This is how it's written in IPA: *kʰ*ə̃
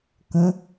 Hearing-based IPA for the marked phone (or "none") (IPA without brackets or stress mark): k